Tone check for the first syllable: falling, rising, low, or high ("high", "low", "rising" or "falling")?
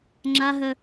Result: high